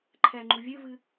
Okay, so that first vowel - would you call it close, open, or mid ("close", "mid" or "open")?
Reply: mid